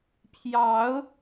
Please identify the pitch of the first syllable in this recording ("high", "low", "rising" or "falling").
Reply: rising